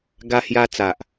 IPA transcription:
ɡa˧hja˧ t͡sa˨ʔ

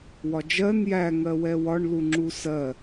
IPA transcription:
wɒd͡ʒɜn jæ ŋɜwɛwɒɳ luŋ͡ǁusɜ

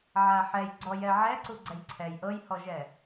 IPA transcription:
ʕaħɛj ɡ͡ǀɔjɛ ʕɛǀu ɡ͡ǀɛjǀʰɛj ʔɤjhɔʒɛ

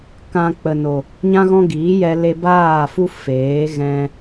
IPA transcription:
kã˧ k͡pə˨no˨ | ɲã˦ɣɔ̃˦ɡiː˨˦jɛ˧ le˧baː˦˨fu˦ feː˨˦ ɣɛ̃˧

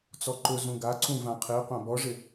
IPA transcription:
t͡sɔǃʊ zũɡaǀũ vãqʰiqʷã bɔʐɪ

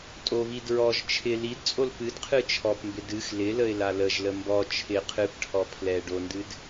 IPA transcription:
tʼoβi dɹɔʒ t͡ʃʰɪ lidt͡sʼol pɨdqʰɨ t͡ʃʰɔpmbɪ dɨx lɪləɪ̯ laləʒlə mbɔ t͡ʃʰɪ qʰɨpʈʰɔ pʰlɛ ɖondɨd

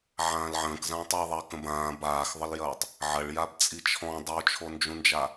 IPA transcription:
ʕãːlʕə̃ːkzãːtˤ ɐ ðˤɐ kə̃bãː baːxðˤəljɐːtˤ | ʕɐɭjab t͡sʼit͡ʃʰɔ̃ dˤot͡ʃʰond͡ʒũnd͡ʒa

